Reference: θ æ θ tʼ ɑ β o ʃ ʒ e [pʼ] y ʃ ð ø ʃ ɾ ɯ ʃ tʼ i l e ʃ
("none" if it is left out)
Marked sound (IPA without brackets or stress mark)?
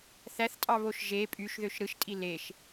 pʼ